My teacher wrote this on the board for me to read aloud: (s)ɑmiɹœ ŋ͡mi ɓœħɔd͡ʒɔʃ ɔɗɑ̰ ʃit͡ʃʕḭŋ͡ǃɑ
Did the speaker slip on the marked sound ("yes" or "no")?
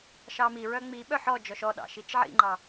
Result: yes